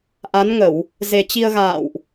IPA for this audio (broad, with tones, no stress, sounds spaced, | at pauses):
ʔ a˨˦ n ŋ ə˧˩˨ w | z e˨˩ t͡ɕ i˧ ə̯ ɣ a̰ː˧˨ w ʔ